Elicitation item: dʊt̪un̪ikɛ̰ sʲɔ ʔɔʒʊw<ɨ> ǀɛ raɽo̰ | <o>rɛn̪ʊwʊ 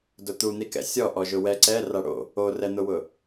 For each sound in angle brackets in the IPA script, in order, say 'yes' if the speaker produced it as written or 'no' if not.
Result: no, yes

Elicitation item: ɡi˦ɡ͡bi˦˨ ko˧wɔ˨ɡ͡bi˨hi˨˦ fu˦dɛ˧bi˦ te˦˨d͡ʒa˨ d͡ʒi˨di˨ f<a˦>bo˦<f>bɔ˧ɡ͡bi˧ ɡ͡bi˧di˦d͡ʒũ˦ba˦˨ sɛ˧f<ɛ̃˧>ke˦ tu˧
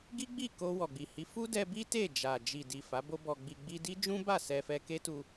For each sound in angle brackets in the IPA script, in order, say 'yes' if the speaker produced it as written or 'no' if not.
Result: no, no, no

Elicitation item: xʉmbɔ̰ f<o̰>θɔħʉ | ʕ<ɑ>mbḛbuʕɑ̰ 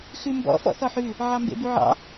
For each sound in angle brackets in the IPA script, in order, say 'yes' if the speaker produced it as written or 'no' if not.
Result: no, yes

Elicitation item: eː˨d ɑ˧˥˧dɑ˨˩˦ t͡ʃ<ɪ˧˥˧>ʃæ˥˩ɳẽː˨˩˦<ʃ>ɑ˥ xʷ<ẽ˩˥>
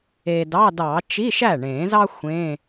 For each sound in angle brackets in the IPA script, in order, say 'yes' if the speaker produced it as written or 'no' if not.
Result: no, no, no

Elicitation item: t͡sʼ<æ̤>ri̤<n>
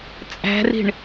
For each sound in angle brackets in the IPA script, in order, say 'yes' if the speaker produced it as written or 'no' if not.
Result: yes, no

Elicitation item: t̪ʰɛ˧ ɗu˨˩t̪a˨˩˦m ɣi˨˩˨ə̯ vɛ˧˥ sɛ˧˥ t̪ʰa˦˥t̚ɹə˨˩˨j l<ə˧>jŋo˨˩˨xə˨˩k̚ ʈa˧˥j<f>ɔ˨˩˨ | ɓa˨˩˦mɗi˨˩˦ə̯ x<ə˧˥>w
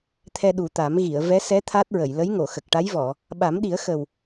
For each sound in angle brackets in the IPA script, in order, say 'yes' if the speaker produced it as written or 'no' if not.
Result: no, no, no

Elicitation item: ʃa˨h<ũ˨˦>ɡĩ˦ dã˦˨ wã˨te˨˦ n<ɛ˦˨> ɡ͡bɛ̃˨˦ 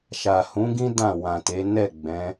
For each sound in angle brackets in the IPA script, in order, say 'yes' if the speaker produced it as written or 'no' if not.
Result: yes, yes

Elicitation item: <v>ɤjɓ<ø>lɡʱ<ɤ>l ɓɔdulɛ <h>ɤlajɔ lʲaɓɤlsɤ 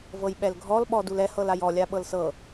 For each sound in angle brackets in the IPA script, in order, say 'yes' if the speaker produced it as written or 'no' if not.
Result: yes, no, no, yes

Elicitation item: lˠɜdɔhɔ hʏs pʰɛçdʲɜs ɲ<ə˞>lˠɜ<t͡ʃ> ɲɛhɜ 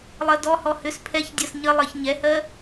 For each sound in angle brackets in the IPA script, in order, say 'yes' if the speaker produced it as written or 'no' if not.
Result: no, no

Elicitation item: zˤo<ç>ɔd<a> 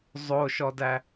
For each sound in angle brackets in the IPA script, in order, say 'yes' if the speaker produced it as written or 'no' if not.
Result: no, no

